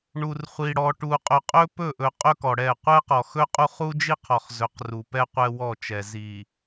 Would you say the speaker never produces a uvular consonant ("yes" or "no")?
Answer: no